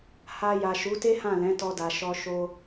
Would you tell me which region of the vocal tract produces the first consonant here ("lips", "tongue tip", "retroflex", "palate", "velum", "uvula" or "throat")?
throat